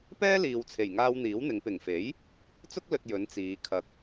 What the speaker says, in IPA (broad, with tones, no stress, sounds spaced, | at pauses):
p ɛː˥ l iː˨ w t͡sʰ e˨˩ j ŋ aː˧ w n̪ iː˨˥ w n̪ ɪ˨˧ ŋ p ɪ˨˩ ŋ f e˨˥ j | t͡s ʊ˥ k̚ l ɵ˨ t̚ j ɵ˨˥ n t͡s iː˨˧ kʰ ɐ˧ k̚